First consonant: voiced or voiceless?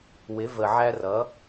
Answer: voiced